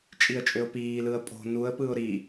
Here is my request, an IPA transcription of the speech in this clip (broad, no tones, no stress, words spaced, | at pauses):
t͡ʃʼiə̯t͡ʃʼøʊ̯piːlɯə̯ pʼo̤ nuə̯pɯʊ̯ ɾi